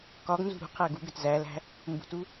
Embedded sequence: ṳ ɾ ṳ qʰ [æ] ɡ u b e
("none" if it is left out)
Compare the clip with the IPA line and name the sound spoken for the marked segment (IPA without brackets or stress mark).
æ